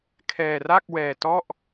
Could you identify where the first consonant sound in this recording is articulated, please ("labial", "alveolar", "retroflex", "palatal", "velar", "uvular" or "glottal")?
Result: velar